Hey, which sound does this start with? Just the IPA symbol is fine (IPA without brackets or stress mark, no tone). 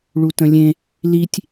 ɭ